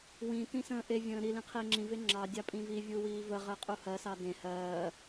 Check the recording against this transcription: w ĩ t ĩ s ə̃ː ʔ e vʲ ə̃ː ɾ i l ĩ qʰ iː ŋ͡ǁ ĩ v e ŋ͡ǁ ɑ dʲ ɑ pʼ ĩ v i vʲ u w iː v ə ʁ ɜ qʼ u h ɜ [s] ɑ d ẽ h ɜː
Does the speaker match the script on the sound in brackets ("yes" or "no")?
yes